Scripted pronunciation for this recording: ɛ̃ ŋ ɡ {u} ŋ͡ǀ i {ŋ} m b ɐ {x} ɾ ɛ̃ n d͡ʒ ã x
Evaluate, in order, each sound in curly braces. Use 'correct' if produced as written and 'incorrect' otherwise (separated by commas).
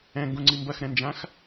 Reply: incorrect, incorrect, correct